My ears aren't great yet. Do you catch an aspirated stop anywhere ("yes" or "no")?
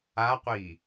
no